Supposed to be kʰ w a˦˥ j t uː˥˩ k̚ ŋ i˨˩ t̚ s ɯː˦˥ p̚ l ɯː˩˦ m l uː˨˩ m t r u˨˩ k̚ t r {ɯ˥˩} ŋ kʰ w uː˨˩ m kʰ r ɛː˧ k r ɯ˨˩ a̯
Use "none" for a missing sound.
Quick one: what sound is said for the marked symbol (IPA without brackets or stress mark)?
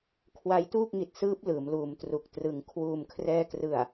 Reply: ɯ˨˩